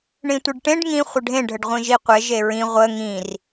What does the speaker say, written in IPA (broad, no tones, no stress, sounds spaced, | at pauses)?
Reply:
ɳ ĩ tʷ i ɖ ʈ ẽ ɖ ŋ ĩ χʷ ə ɖʱ ẽ ɖʱ ə ɖ ʁʷ ĩ ʒ i qʷ e ʒ e ɹ ĩ ʁʷ ə ŋ ĩ r